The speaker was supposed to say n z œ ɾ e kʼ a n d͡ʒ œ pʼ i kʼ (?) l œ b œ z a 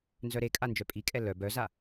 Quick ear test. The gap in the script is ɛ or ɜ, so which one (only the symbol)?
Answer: ɛ